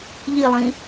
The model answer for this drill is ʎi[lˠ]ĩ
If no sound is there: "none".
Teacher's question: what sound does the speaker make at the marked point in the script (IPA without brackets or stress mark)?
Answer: lˠ